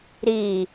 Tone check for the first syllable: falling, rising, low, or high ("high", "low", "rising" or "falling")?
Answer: low